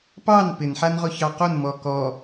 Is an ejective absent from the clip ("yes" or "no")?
yes